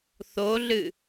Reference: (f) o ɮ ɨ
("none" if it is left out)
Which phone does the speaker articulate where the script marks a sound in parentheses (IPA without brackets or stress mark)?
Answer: θ